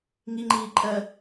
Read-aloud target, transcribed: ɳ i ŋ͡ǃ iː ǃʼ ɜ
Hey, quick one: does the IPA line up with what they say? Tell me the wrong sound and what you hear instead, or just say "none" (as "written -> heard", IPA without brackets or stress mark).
ɳ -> ŋ